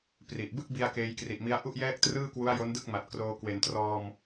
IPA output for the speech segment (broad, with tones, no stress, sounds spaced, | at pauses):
p r i˨˩ ʔ b ɯ˥˩ k̚ b i˧ a̯ k eː˧ j k r i˨˩ ʔ m i˦˥ a̯ ʔ u˥˩ ʔ j ɛː˥˩ k̚ t r ɯː˥˩ k w u˦˥ a̯ j o˦˥ n d ɯ˥˩ k̚ m a˨˩ t̚ k r oː˧ k w e˩˦ n t r ɔː˧ m